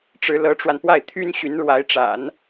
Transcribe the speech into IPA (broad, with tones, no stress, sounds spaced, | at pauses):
ʈ͡ʂ ɻ̩˧˥ l ɤ˧˥ ʈ͡ʂ w a˧ n p w a˥˩ ɪ̯ t̪ʰ y˥ n ɕ y˧˥ n ɻ w a˧˥ ɪ̯ ʈ͡ʂ a̰˨˩˦ n